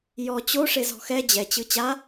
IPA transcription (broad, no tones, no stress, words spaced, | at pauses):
jɔ t͡ɕoʂezɔ̤ xɛ d͡ʑɛt͡ɕɯ t͡ɕa